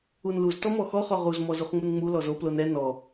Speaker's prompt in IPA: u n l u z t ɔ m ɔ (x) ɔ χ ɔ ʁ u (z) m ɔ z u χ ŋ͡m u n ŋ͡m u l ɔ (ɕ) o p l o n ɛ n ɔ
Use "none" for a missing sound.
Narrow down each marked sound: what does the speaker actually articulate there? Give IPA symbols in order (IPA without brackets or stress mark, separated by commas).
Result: x, z, z